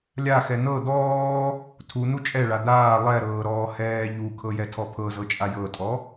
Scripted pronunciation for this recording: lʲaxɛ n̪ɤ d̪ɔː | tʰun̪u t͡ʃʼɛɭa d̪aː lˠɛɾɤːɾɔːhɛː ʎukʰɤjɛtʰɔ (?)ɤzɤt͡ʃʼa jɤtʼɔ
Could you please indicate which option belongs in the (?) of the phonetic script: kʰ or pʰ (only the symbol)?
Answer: pʰ